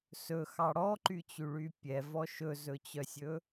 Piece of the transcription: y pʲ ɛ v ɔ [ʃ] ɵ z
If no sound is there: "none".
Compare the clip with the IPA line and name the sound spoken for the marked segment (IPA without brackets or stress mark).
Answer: ʃ